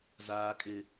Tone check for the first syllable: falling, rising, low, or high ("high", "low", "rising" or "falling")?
low